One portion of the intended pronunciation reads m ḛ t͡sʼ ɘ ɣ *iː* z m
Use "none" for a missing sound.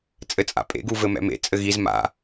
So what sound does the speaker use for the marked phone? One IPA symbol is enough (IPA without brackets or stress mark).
i